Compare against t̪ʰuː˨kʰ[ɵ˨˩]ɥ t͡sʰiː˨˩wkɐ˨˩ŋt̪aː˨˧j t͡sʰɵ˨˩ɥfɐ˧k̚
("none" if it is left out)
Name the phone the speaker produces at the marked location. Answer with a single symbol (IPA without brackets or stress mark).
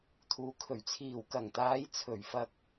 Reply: ɵ˨˩